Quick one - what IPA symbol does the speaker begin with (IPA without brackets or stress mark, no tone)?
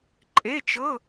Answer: ǃʼ